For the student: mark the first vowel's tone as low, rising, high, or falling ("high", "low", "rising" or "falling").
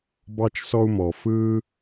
high